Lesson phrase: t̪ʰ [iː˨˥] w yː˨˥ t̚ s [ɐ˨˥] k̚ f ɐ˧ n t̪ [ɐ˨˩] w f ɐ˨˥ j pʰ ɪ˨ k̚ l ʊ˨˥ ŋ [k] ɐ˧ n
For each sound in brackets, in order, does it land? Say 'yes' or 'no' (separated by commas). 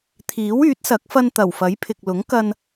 yes, yes, yes, yes